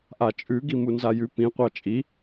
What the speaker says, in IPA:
ʔat͡ʃʼʉ ɡimunzajʉ pĩ qʷɑt͡ʃʼi

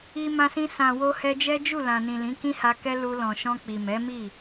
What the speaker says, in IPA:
i˧mã˧sĩ˧ sã˨wo˧ hɛ˧d͡ʒɛ˦d͡ʒu˦˨ lã˨nĩ˨ lĩ˨˦kĩ˦ha˧kɛ˦ lu˧ lɔ̃˨ʃɔ̃˧ k͡pi˨ mɛ˨˦mi˦˨

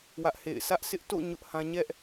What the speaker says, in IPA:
wä˦ʔhḛ˦˨ɪ̯ sä˦ʔsɪ˦ʔ to̰˦˨ ɲʊ˦ʔhã˦ ɲɛ˦ʔ

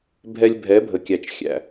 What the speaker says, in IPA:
bʱɛ˧lʲbʱɛ˨˦bʱə˨kʲæ˨t͡ʃ xʲæ̰˨

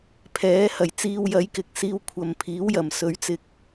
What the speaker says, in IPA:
pʰɛː˨˥hɐ˨˩j t͡siː˧wjɐ˨˥jkɪ˨k̚ siː˧wkʷʰɐ˨mpʰiː˨˥wjɐ˨˩m sɵ˨˥ɥt͡sɪ˧k̚

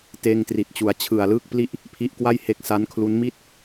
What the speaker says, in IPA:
teː˧ŋtri˨˩t̚t͡ɕu˩˦a̯ t͡ɕʰɯ˨˩a̯lɯː˥˩k̚pli˥˩ʔ | pʰi˦˥ʔkwa˥˩j he˦˥k̚sa˦˥nkʰlu˦˥n mi˥˩t̚

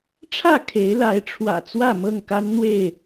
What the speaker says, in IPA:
ʈ͡ʂʰä˥˨ kʰe˨˦ɪ̯la˨˦ɪ̯ʈ͡ʂʰwä̰˨˩ t͡swä˥˨mɤ˥˨ŋka˦nn̪we˥˨ɪ̯

